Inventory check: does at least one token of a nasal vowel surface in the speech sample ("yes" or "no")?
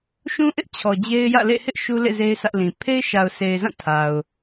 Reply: yes